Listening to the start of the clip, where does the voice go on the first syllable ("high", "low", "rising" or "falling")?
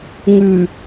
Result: low